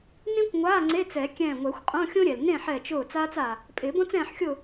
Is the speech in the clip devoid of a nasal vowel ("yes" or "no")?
no